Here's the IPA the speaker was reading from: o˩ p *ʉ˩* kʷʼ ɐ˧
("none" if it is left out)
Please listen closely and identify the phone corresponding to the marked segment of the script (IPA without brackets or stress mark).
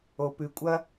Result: ʉ˩